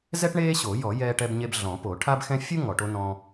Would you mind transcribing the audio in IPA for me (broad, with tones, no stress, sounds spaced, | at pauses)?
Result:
z ɛ˥ ʈ ɳ eː˥ ɕ o˨˩˦ j ɔ˨˩˦ j ɛː˥ ʈ ɛ˥ b ɲ e˥ b ɮ ɔ̃˨˩˦ p o˨˩˦ ʈʰ a˥ b x ɛ̃˥ fʲ u˥ ŋ ɔ˨˩˦ ʈ o˥ n ɔ̃˥